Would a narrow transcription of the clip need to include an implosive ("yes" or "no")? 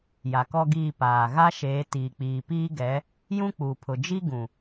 no